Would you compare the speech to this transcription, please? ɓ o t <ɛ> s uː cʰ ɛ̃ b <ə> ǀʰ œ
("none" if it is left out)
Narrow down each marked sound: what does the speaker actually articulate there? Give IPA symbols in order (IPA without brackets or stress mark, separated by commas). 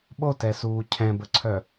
ɛ, ə